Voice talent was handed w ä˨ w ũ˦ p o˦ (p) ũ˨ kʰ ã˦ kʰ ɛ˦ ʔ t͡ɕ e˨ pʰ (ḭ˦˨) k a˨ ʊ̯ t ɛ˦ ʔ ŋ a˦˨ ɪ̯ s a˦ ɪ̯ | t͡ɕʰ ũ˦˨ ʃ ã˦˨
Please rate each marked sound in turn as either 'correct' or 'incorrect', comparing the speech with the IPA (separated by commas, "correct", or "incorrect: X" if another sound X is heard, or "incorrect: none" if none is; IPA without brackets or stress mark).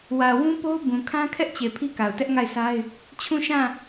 incorrect: b, incorrect: i˦